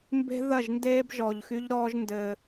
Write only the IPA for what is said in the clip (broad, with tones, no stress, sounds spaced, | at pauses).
m b e̤˦ ð ɐ˦˨ ʒ n d eː˦ b ʒ ɔ˨ ʎ x y˦ ʎ ɾ ɔː˦ ʒ n d ɘː˦